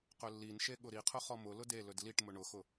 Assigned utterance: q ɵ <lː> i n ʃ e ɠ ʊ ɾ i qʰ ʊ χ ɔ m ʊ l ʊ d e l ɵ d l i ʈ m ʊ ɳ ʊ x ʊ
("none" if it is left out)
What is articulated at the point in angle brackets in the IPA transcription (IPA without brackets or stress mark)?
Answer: lː